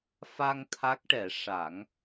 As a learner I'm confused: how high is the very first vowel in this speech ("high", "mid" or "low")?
low